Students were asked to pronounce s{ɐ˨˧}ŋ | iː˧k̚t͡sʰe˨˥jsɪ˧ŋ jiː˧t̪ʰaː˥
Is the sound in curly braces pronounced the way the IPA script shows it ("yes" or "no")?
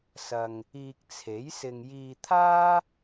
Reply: no